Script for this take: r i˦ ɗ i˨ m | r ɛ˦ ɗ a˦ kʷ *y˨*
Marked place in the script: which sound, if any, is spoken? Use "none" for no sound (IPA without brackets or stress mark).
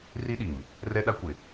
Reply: ɪ˨